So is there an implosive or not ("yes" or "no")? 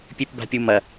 no